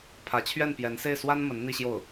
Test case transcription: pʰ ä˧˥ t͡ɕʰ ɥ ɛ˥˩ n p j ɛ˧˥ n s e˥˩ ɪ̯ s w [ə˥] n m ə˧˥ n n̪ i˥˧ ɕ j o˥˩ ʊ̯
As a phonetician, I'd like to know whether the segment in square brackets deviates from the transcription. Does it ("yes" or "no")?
yes